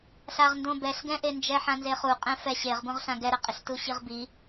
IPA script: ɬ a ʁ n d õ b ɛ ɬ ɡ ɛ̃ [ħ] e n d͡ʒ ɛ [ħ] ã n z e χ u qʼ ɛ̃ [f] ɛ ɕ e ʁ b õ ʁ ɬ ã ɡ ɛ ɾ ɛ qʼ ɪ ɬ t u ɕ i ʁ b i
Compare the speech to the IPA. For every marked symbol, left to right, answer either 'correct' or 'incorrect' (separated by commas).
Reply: incorrect, correct, correct